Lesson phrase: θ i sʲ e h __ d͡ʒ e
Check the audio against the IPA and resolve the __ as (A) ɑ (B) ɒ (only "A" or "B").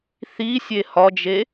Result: B